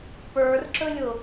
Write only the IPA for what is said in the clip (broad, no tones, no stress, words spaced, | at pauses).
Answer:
pə˞rǁɵlʲʊ